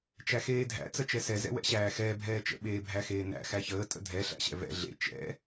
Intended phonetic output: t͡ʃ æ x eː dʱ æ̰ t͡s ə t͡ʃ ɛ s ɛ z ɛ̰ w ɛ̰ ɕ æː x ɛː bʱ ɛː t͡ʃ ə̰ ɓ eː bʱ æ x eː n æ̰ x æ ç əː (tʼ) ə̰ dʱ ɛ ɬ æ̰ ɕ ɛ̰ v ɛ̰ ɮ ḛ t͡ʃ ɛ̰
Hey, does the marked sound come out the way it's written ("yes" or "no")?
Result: yes